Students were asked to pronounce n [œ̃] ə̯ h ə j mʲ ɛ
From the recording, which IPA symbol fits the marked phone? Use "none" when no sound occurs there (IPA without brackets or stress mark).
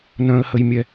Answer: œ̃